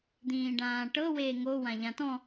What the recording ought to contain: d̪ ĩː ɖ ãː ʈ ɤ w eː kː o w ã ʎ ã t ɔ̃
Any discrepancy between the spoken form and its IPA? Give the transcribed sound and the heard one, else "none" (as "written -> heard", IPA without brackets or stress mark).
kː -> ŋ